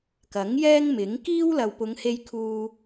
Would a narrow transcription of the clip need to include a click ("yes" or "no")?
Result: no